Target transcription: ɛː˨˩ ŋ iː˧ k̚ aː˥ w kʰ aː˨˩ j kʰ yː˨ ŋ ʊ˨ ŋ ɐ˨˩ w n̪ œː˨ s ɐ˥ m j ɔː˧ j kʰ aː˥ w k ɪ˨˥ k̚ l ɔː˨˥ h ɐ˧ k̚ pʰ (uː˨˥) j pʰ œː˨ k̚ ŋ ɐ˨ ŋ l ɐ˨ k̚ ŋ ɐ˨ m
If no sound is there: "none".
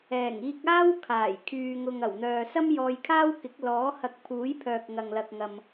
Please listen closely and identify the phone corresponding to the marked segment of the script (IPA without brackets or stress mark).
uː˨˥